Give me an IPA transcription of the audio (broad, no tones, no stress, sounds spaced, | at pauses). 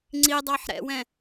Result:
ŋ͡ǀ i dˤ ɑ ħ ɾ ɛ̰ w ɛ̃